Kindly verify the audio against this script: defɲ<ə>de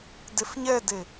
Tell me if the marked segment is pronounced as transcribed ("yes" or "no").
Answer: no